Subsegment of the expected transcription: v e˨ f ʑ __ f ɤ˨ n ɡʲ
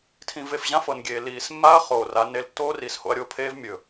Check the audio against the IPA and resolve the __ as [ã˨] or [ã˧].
ã˧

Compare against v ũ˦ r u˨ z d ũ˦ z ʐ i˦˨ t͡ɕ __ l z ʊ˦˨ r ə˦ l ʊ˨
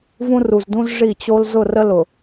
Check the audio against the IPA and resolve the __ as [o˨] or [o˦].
o˦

